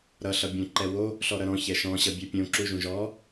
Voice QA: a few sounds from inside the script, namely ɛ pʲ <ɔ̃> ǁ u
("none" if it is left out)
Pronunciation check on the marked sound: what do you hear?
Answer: õ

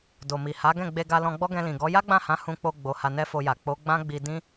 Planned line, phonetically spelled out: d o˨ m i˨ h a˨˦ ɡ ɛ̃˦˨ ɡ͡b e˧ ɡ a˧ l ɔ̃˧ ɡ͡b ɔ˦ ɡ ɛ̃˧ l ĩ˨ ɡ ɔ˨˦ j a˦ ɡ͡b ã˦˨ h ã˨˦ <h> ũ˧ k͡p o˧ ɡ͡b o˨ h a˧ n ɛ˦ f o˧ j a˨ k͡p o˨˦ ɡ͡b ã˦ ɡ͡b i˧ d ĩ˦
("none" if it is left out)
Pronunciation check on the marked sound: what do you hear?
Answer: h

